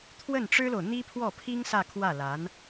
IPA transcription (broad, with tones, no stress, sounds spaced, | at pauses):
t̪ʰ w ə˥˩ n ʈ͡ʂ ɻ̩˥ l o˨ ʊ̯ n̪ i˥ pʰ w ɔ˥˩ pʰ i˥ ŋ s ä˥˧ kʰ w ä˥˩ l a˧˥ n